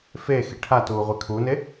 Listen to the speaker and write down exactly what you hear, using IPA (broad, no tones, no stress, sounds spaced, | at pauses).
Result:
f eː x i ʈʰ a t uː ʁʷ i kʰ u n e